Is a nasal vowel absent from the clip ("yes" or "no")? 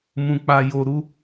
no